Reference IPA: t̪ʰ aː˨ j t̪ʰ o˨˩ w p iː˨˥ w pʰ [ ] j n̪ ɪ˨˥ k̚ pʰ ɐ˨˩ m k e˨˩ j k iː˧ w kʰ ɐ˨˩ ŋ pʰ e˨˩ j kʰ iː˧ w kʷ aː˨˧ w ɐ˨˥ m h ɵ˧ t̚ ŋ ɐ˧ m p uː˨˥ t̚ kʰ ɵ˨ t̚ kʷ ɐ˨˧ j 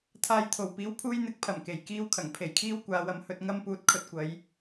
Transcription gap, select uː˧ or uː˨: uː˧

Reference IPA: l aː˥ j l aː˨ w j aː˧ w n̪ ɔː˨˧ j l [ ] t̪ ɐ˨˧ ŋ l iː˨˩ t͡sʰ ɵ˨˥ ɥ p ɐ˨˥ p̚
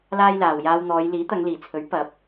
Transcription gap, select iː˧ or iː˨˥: iː˨˥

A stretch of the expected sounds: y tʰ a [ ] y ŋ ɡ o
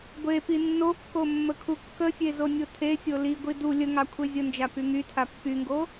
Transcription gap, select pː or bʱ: pː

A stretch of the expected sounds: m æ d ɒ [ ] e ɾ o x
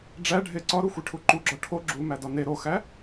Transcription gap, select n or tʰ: n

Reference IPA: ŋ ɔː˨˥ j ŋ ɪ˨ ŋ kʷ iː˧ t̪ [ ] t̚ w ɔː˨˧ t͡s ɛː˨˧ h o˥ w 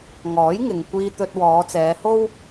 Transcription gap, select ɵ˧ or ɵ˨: ɵ˧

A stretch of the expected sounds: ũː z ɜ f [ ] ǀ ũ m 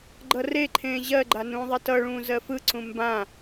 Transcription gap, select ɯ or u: ɯ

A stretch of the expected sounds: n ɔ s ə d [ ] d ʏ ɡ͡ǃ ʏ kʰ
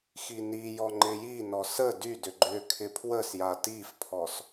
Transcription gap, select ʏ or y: y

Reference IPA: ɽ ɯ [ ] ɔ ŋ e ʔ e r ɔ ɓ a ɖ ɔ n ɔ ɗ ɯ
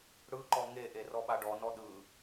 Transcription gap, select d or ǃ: ǃ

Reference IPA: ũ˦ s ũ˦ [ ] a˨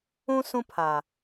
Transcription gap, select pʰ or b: pʰ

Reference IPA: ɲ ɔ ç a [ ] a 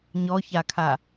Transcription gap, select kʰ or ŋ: kʰ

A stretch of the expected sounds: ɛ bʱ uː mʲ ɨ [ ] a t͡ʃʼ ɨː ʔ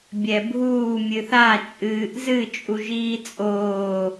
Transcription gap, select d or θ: θ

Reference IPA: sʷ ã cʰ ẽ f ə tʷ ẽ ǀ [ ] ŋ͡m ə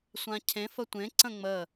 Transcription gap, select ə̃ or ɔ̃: ə̃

